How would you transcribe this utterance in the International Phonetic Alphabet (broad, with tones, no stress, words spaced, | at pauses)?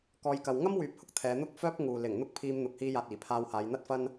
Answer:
kɔː˧jkɐ˨w ŋɐ˥mwyː˨p̚hʊ˨k̚ t̪ʰɛː˨˧n̪ʊ˥k̚fœː˥p̚ŋuː˨ lɪ˨˩ŋ n̪ʊ˥k̚pʰiː˧mn̪ʊ˨k̚ hiː˧jaː˨t̚ iː˨˩pʰaː˧whaː˨˧j n̪ɐ˥t̚fɐ˥n